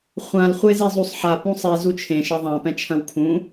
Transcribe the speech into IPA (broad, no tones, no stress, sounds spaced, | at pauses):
χʷ ã l χʷ e z i zˤ u sˤ ħ a p ũ sˤ i z u t͡ʃʰ ẽ ʃ ɐ ðˤ ã p ɛ̃ t͡ʃʰ ɐ̃ w kʰ ũ